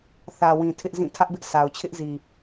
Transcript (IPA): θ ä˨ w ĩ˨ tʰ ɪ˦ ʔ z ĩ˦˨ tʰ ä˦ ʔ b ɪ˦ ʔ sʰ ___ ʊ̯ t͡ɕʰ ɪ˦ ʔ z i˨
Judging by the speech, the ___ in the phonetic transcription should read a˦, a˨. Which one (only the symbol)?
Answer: a˨